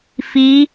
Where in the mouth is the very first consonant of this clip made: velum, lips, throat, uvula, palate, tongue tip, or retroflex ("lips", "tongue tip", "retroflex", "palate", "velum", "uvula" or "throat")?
lips